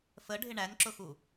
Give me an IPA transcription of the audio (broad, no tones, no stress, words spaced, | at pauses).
fəɖʱɪ ɳænǁʊxu